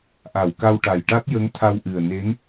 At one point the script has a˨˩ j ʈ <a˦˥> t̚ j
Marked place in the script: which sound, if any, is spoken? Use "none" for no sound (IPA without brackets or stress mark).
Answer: a˦˥